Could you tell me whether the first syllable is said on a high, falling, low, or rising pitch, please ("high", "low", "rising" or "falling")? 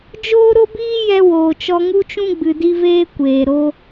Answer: high